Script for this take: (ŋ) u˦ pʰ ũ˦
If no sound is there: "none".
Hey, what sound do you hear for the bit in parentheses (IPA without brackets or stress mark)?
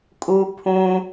kʼ